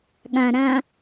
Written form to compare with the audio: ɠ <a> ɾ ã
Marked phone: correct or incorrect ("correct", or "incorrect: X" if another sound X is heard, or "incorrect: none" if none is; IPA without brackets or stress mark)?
incorrect: ã